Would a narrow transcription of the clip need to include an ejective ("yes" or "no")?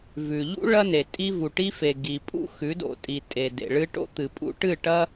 yes